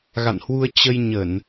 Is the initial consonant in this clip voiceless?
no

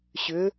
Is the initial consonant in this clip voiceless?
yes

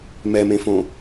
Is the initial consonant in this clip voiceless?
no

